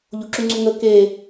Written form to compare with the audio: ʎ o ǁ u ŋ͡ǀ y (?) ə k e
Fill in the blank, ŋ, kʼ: ŋ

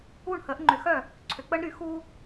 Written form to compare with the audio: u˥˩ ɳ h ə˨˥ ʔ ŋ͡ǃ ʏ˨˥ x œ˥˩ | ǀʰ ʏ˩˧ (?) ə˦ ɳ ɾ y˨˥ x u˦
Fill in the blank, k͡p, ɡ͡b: k͡p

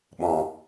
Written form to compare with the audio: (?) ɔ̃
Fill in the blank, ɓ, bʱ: ɓ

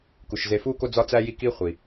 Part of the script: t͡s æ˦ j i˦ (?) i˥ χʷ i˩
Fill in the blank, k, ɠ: k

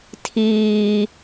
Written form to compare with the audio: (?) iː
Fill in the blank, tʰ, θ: tʰ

